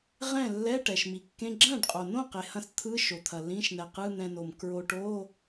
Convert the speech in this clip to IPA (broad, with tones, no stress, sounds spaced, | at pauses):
ʁ ɛ̃˥˩ lː ɛ˧˥˧ ʈ ɛ˩ ʃ m i˩ kː ẽ˧˥˧ ɡ͡ǁ ɐ̃˥˩ ɖ qʼ o˩ n õ˥˩ q e˩ h ɐ̃˧ s t̪ʰ ɯ˧˥˧ ʃ o˩ t̪ʰ ɐ˩ l ĩ˧˥˧ ʃ n ɛ˩ q ɯ˧˥˧ n̪ ɛ̃˧ n o˩ m k ɹ o˧ ʈ o˧˥˧